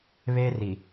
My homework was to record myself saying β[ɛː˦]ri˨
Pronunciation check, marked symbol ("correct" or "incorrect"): incorrect